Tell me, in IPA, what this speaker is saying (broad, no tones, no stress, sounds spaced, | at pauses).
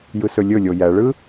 j ɯ s ɵ lʲ ɵ lʲ o j æ ɭ ɯ